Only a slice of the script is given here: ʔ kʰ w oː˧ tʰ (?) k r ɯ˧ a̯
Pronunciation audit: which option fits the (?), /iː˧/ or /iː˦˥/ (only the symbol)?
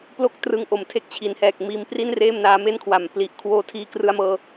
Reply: iː˧